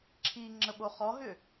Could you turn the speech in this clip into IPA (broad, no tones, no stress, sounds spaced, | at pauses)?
ǁʰ i ŋ͡ǁ ə ɓ o χ ɔ ɦ ʏ